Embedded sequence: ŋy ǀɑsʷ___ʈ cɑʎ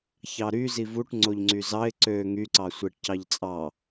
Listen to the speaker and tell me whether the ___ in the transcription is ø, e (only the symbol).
e